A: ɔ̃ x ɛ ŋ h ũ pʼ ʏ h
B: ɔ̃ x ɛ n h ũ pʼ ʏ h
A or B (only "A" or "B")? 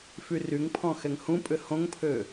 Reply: A